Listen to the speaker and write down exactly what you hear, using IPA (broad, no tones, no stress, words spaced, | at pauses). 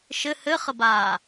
ʃɘ hɘχəbaː